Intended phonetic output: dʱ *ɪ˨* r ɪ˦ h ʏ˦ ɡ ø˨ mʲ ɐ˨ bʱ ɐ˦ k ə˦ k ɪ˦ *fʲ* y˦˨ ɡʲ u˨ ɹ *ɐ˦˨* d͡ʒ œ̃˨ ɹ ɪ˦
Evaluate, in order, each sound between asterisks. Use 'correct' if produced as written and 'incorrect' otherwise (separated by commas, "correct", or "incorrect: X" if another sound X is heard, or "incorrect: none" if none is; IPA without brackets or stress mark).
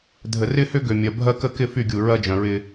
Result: incorrect: ə˨, incorrect: f, incorrect: ɐ˦